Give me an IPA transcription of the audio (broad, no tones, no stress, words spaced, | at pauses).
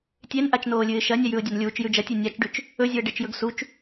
tʲenʔat͡ʃnoːlʲɨːɪ̯ ʃɐnʲajʉʊ̯ dʲanlʲuːt͡ʃ jʉd͡ʒɐtʲe nʲat͡ʃɖʉt͡ʃ | ɵzʲɵə̯ ɖet͡ʃjɵɡsut͡ʃ